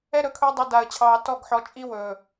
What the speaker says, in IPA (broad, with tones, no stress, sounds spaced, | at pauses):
ɛ˦ ɾ ɵ˨ kʰ ɵː˦ dˤ u˨ d a˨ ə̯ t͡ɕʰ ɑː˨ t ɔ˦˨ ɡ ħ ɔ˨ t͡ʃʼ i˦ w ɵː˨